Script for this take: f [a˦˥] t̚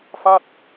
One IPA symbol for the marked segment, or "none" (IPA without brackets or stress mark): a˥˩